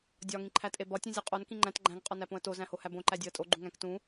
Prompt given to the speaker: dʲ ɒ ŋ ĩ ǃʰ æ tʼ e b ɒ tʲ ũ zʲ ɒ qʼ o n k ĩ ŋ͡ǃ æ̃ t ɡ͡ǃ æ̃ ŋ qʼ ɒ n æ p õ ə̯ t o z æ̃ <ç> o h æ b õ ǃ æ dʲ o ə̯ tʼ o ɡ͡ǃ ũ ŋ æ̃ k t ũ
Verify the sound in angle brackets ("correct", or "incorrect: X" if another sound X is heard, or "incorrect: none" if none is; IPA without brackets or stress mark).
incorrect: h